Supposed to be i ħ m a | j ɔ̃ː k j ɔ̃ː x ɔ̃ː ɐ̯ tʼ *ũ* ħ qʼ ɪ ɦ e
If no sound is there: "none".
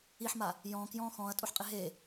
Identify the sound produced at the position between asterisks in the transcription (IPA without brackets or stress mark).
u